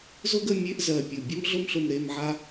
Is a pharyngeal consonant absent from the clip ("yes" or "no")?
no